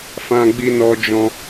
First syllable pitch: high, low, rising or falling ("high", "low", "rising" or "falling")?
high